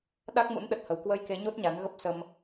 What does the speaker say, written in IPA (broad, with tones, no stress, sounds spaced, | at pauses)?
ɗ a˦˥ k̚ m ṵ˧˥ n ɗ ə˨˩ t̚ h ə˨˩ w k w ə˧ j k e˨˦ ɲ o˦˥ t̚ ɲ a˨˦ n ɣ ə˦˥ p̚ s ə˧ m